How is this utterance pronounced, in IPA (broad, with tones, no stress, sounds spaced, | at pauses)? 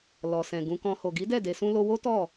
l ɔ˨ s ɛ̃˨ ɡ ũ˧ k ɔ̃˧ h o˨ ɡ i˨˦ d ɛ˦˨ d e˧ s ũ˦ l o˦ w o˦ t ɔ˦˨